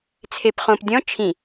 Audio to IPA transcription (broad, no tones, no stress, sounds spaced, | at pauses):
t͡sʰ e p χ õ p dʲ ɔ̃ t͡ʃʰ ĩ